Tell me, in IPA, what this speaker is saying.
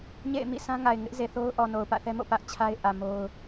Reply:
ɲ ḛ˦˨ ɪ̯ m ḭ˦˨ sʰ ã˦ ŋ a˨ ɪ̯ ŋ ɪ˦ ʔ z e˨ θ o˦ ʊ̯ ʔ ɔ˨ n o˨ ʊ̯ p ä̰˦˨ θ ɛ˦ m o̰˦˨ p ä˦ ʔ t͡ɕʰ a˦ ɪ̯ ʔ ä˨ m o˦ ʊ̯

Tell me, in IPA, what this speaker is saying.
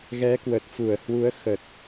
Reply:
ɣ ɛ˨˦ k w ə˨˩ t̚ f u˧˩ ə̯ h w u˨˦ ə̯ x ə˨˩ t̚

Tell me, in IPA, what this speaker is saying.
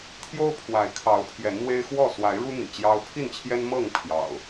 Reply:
t̪ʰ j o˦ ʊ̯ pʰ w a˨˦ ɪ̯ kʰ ɑ˨˦ ʊ̯ pʰ j ɛ˨˦ n n̪ w e˦ ɪ̯ x w ɔ˥˨ s w a˨˦ ɪ̯ ɻ u˦ n̪ ḭ˨˩ t͡ɕ j ɑ˦ ʊ̯ pʰ i˥˨ n t͡ɕʰ j ɛ˦ n m ɤ˥˨ ŋ pʰ j ɑ̰˨˩ ʊ̯

